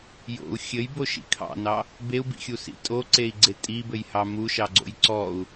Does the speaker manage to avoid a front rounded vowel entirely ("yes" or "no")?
yes